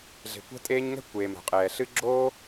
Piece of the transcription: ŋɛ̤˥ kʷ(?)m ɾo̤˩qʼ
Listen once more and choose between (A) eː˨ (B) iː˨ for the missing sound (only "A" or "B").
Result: A